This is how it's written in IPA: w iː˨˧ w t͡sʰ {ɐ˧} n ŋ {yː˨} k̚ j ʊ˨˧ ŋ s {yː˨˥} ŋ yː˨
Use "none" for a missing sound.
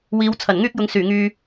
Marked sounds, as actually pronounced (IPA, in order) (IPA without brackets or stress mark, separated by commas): ɐ˨˩, yː˥, yː˨˩